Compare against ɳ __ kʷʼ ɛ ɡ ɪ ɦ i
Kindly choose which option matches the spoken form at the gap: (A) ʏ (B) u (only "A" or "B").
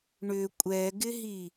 A